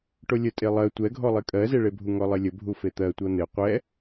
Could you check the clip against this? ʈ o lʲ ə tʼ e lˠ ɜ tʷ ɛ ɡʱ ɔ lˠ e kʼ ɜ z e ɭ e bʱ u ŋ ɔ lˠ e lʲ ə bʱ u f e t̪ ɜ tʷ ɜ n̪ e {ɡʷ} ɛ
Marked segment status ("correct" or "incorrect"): incorrect